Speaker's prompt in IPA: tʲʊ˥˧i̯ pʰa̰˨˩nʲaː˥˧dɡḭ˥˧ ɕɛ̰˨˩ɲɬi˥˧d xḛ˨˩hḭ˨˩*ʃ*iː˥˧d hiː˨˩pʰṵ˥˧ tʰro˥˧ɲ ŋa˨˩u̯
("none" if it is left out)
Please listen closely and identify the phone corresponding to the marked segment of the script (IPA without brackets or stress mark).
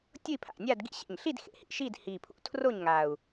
ʃ